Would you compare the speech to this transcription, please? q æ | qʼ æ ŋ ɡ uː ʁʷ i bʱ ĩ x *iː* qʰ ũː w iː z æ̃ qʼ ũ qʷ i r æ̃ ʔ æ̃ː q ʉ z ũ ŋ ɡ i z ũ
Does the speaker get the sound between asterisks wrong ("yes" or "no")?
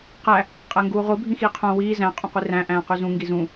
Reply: no